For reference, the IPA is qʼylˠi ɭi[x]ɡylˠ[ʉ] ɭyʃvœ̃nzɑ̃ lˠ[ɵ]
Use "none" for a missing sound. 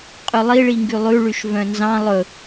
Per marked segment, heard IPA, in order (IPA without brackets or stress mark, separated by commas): ŋ, ʉ, ɵ